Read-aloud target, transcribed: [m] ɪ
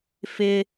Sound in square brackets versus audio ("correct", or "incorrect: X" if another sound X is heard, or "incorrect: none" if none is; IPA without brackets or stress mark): incorrect: f